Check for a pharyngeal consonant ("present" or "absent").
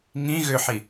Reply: present